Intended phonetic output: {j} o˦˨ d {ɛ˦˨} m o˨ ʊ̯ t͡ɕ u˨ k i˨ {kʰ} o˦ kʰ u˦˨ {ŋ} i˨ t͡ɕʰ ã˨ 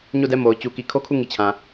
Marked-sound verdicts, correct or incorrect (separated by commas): incorrect, correct, correct, correct